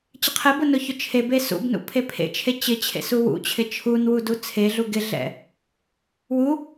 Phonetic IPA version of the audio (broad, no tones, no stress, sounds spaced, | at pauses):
t͡ɕ ɪ qʰ ɛ b ʊ n ʊ ç ʊ t͡ʃʰ e b e s ṵ b n ṵ pʰ e pʰ ḛ t͡ʃʰ e t͡ɕ ɪ t͡ɕʰ ḛ s u w ṵ t͡ɕʰ ɪ t͡ʃʰ u n w u d u t͡sʰ e ɮ u ɡ ɪ ɮ ɛ̰ | w u